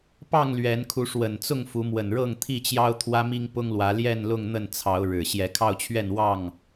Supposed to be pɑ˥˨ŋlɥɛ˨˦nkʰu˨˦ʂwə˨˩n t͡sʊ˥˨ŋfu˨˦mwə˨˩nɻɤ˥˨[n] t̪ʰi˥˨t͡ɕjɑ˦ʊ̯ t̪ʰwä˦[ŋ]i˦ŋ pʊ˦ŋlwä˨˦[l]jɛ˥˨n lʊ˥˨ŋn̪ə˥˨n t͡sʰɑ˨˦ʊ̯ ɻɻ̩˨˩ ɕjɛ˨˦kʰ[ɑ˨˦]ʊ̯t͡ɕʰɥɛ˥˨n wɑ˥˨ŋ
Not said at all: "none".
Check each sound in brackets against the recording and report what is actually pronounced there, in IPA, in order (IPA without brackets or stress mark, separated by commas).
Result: ŋ, m, l, ɑ˥˨